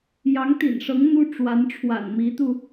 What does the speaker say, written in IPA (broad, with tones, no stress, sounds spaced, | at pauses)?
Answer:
j ɑ˧˥ ŋ t̪ ḭ˨˩ n ʂ ɤ˧˥ ŋ n̪ u˥ ʈ͡ʂ w a˧˥ n ʈ͡ʂʰ w a̰˨˩ n m i˧˥ t̪ u˧